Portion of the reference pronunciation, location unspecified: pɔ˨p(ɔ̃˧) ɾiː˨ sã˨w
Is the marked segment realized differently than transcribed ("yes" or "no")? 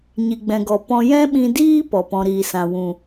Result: no